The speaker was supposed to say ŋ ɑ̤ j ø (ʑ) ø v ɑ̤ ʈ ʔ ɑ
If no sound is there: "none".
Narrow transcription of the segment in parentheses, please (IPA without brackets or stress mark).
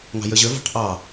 ʑ